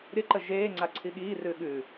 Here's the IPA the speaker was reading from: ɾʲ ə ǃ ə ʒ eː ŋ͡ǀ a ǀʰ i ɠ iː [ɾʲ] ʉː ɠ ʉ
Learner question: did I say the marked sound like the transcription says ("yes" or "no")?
no